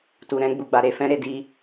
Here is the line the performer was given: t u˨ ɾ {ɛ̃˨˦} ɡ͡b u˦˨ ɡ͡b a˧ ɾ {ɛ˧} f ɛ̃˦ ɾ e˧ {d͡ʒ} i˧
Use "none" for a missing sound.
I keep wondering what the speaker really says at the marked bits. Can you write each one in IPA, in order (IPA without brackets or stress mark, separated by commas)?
ɛ̃˨˦, e˧, d